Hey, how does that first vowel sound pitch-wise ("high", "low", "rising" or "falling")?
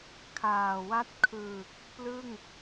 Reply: low